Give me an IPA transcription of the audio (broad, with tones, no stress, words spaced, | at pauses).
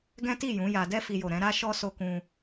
ɡɛ̃˦ti˦˨ jũ˨˦ja˧ dɛ˧fi˨jo˨ ɾɛ̃˨˦ɾa˦ʃɔ˦ so˧kũ˧